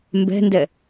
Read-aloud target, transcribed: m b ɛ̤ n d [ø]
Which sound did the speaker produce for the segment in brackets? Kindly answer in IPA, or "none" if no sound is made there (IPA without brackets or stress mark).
ɛ